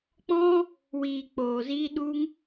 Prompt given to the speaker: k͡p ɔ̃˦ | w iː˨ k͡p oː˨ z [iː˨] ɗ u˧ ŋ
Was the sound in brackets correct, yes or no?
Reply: no